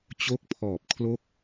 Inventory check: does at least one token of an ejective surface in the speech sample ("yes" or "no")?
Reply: no